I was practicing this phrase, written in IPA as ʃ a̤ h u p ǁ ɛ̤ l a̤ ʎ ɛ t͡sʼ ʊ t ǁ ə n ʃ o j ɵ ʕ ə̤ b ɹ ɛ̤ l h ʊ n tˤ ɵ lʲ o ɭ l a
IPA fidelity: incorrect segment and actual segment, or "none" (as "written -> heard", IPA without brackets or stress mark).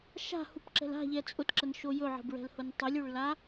none